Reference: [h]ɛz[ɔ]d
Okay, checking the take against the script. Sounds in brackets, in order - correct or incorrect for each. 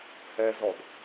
correct, correct

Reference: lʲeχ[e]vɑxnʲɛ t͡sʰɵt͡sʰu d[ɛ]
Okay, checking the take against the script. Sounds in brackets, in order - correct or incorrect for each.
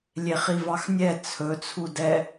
incorrect: i, correct

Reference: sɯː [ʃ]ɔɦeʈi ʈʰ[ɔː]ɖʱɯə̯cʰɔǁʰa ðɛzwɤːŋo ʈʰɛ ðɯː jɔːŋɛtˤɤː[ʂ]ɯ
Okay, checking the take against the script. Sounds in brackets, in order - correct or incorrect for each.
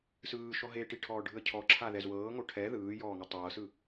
correct, correct, incorrect: s

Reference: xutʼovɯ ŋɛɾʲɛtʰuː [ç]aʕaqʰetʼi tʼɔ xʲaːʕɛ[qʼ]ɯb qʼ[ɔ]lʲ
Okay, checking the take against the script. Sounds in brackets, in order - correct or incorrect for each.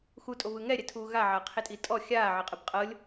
incorrect: ɣ, correct, incorrect: ɤ

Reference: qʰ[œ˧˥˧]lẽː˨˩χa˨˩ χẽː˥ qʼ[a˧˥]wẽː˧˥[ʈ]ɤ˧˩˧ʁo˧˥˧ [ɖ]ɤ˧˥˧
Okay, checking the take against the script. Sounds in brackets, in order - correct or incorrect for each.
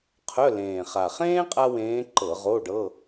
correct, incorrect: a˥, incorrect: ǃ, correct

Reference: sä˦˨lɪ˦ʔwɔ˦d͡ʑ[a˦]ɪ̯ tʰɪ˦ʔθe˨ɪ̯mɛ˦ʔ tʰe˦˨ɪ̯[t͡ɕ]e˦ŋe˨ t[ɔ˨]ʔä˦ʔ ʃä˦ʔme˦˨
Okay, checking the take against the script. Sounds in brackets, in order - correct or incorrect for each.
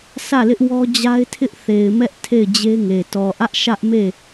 correct, incorrect: d͡ʑ, correct

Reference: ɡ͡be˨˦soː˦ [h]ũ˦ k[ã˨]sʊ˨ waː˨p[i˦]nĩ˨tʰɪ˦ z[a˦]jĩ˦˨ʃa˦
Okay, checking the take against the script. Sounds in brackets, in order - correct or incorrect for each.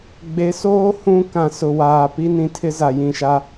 correct, correct, correct, incorrect: a˨

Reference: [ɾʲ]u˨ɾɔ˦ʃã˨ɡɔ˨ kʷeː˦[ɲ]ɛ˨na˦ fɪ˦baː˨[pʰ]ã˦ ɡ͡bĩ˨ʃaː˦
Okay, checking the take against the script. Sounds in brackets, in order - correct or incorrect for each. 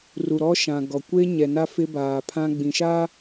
incorrect: r, correct, correct

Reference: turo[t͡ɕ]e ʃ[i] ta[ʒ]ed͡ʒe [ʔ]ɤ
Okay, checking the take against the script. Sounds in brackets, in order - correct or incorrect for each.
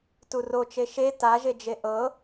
incorrect: t͡ʃ, incorrect: e, correct, correct

